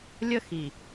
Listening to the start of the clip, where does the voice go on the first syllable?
high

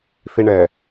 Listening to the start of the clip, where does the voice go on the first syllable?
high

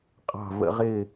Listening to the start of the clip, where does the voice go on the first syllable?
falling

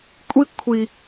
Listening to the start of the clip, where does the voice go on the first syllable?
high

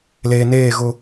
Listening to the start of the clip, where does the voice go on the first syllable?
low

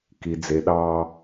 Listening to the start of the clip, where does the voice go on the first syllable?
low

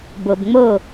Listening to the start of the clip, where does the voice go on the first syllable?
low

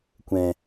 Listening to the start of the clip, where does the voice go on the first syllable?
low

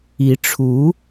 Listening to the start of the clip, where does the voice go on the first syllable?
rising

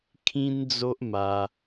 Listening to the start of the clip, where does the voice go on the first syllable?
high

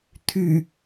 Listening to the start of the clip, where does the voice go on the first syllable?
low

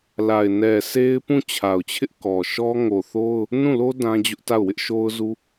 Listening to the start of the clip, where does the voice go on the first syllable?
low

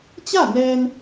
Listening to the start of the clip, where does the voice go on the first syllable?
falling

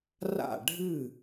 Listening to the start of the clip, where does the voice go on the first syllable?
falling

